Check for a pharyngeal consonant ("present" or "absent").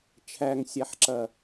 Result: present